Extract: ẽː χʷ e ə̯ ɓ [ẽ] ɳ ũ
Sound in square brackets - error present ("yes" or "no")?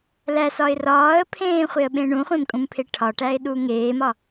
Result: no